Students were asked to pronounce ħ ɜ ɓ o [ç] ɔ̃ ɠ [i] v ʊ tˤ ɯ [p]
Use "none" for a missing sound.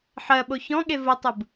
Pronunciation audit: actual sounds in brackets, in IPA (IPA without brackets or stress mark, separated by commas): ç, e, b